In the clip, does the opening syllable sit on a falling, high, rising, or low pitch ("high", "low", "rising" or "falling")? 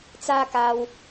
high